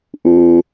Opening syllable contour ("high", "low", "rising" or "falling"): low